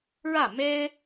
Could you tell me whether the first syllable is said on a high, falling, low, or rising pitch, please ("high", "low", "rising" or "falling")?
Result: falling